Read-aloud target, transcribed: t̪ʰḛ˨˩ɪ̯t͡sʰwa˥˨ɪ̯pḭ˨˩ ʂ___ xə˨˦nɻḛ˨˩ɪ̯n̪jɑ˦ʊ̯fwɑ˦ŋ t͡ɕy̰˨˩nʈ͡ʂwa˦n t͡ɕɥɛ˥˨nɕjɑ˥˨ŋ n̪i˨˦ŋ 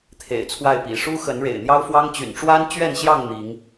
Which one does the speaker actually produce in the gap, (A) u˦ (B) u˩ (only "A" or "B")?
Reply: A